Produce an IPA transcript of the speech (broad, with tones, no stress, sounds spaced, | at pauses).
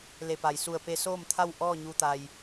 l e˧˩ p a˩ j s u˧˩ ə̯ p e˧ s oː˥˨ m t̪ʰ a˥˨ w ʔ ɔː˥˨ ɲ u˧ t̪ a˧ j